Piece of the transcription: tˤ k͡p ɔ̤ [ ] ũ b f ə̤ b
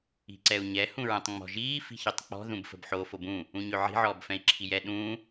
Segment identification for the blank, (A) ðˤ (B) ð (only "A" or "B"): B